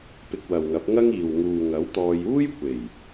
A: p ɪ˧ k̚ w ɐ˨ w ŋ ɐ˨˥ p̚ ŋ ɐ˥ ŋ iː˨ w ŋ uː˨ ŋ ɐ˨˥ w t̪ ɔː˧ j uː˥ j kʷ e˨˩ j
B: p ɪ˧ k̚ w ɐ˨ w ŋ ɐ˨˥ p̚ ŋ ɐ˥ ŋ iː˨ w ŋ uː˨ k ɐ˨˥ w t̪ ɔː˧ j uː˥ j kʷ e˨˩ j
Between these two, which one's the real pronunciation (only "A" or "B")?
A